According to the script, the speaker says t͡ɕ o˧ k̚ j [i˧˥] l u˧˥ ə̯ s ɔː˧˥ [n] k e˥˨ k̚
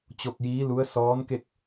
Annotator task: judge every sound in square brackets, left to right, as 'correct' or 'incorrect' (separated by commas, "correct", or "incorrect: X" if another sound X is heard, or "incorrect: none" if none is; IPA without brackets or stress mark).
incorrect: iː˧˥, correct